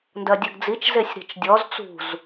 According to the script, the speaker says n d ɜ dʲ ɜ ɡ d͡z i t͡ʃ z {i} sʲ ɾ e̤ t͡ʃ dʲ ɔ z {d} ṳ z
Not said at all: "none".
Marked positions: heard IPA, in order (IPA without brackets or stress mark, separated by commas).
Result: e, t͡s